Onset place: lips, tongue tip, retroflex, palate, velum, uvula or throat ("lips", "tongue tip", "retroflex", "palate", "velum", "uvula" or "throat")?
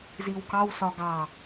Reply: tongue tip